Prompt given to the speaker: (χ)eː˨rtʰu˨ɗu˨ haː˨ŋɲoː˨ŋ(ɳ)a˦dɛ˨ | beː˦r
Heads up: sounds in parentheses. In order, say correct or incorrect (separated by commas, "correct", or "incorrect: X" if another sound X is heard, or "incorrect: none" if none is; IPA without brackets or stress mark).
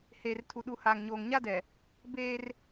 incorrect: h, incorrect: ɲ